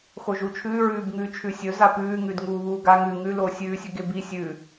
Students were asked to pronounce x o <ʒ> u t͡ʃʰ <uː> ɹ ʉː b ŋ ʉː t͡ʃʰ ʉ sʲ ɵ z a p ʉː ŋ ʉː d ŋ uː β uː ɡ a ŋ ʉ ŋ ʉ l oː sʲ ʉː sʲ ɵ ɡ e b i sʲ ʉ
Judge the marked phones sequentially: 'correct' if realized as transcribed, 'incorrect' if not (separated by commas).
correct, incorrect